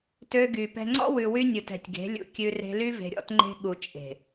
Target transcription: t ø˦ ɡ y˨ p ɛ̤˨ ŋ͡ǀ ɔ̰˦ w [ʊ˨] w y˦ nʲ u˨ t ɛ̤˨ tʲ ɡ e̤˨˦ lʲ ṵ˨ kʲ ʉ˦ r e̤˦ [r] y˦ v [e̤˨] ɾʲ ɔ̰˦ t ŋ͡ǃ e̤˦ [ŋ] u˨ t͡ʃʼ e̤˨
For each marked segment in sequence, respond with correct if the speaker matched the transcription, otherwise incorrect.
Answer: incorrect: ʉ˨, incorrect: l, correct, incorrect: ɠ

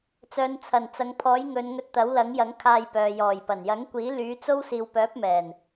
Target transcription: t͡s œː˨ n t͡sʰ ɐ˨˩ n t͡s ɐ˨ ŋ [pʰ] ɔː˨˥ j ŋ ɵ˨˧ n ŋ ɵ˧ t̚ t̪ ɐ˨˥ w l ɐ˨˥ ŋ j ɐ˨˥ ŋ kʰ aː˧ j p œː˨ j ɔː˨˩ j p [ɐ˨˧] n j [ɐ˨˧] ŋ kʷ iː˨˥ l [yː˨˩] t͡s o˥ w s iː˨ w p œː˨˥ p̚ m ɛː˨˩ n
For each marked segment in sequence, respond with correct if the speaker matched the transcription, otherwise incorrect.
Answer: correct, incorrect: ɐ˨˩, incorrect: ɐ˨˥, incorrect: yː˨˥

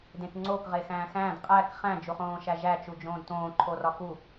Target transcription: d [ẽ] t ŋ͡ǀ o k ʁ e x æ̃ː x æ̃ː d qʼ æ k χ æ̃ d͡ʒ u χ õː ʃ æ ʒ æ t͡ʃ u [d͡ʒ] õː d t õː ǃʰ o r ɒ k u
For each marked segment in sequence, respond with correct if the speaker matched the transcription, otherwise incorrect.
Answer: correct, correct

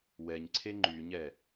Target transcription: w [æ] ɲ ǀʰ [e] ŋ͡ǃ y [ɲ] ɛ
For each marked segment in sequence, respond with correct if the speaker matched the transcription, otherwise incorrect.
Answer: incorrect: ɛ, correct, correct

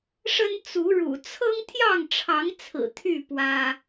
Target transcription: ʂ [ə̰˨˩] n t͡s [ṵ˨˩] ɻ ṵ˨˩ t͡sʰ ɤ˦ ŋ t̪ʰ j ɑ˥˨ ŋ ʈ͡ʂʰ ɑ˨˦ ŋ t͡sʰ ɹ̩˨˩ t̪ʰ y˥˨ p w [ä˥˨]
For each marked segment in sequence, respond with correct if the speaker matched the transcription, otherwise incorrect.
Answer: incorrect: ə˦, incorrect: u˨˦, incorrect: ä˦

